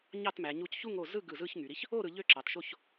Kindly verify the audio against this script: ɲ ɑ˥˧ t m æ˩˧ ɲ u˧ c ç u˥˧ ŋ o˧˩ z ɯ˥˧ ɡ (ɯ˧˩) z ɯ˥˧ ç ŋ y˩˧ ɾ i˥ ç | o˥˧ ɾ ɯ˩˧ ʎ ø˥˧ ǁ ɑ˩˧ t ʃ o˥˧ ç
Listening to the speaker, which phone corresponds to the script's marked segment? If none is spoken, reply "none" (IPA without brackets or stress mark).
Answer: ɯ˧˩